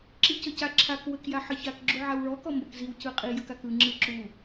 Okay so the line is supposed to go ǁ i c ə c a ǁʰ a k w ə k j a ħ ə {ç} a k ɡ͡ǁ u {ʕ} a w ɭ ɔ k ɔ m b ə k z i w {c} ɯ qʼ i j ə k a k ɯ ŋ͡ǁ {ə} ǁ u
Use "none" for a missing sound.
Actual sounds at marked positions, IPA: ç, ʕ, c, ɯ

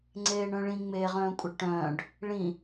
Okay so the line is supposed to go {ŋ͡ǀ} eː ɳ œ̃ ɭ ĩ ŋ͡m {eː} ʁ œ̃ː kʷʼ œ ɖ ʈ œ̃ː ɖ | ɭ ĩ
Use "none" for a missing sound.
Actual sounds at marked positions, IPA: ŋ͡ǀ, eː

